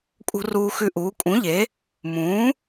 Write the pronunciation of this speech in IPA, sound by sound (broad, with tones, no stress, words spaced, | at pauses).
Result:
kʼṳ˦ruː˦xʉ˦ʔuː˨˥ kʼũ˨˥ʎe˨˥ | mũː˨˥